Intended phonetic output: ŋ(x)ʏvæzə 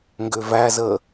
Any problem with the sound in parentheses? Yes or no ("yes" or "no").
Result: yes